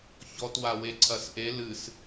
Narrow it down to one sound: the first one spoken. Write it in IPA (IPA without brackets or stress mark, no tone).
ç